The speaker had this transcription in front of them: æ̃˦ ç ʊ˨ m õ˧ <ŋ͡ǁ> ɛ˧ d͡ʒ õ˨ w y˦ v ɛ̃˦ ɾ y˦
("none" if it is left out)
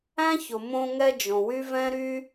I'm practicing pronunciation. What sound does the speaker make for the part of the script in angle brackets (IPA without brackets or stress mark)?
ŋ